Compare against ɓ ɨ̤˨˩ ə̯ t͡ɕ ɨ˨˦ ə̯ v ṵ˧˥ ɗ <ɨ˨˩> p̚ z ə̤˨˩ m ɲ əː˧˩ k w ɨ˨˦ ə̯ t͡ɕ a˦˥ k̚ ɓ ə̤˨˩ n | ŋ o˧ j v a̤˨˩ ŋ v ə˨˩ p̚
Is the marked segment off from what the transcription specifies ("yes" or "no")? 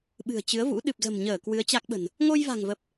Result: no